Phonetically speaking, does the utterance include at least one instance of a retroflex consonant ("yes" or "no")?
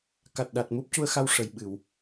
yes